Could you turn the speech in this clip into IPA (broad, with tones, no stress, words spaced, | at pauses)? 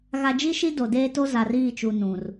ɣa˨d͡ʒi˦ʃi˦ do˨deː˦to˦ za˨riː˦˨t͡ʃu˨ nũ˨r